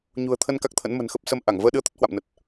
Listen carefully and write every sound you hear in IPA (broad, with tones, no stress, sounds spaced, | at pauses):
ɲ ṳ˨˩ ə̯ t̪ʰ ə˧ n k a˦˥ k̚ t̪ʰ ə̰˧˥ n m ə̤˨˩ n x ə˦˥ p̚ s ə˧ m ʔ a˧˩ ŋ v əː˧ ɗ ɨ˧ ə̯ t̪ ə˦˥ t̚ h w a̰˧˨ m n ə˨˩ t̚